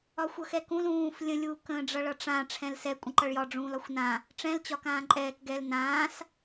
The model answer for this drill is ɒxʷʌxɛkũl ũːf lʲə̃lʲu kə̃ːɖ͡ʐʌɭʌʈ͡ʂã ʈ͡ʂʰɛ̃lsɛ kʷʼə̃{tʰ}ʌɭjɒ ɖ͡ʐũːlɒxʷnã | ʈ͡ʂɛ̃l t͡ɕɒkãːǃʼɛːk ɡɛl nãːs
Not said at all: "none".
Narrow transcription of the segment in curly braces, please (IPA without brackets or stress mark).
ǃ